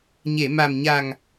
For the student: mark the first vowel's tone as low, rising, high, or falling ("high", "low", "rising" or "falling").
low